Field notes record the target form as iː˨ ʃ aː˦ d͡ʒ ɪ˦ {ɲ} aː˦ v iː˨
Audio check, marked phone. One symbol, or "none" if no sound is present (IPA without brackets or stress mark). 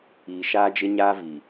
ɲ